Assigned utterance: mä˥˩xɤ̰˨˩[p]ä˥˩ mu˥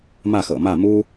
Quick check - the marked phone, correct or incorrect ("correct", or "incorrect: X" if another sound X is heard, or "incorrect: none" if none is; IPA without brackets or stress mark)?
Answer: incorrect: m